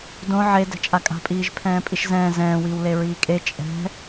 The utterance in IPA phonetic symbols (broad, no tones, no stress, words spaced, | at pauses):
dõ ʕe dɛ̤t͡ʃʼakʼa̤pʼiːʒ pʰɛ̃ːpʼiʃzɛ̃ː zɛ̃ːwiːwle ɹiːkʼe t͡ʃʼɛ̤